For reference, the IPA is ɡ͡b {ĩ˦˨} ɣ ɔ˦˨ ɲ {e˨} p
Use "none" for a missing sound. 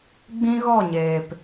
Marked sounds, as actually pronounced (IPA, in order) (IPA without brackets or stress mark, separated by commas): ĩ˦, eː˨